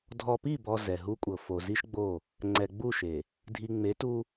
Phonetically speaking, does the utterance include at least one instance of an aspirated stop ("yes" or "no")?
no